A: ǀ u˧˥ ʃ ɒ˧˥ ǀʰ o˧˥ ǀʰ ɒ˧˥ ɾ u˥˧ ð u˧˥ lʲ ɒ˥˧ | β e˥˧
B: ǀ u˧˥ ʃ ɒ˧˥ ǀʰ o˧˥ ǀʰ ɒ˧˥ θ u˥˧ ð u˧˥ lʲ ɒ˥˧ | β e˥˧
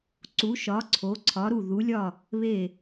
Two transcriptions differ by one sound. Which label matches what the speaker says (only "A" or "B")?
A